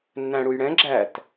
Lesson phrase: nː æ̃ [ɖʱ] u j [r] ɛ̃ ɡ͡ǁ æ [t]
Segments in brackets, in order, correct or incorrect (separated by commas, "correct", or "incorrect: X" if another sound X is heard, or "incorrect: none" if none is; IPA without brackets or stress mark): incorrect: ɽ, incorrect: ɽ, correct